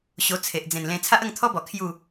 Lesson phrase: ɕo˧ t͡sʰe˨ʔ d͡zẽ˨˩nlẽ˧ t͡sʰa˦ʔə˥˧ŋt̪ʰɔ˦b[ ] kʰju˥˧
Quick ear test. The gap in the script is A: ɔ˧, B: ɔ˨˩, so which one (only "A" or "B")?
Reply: B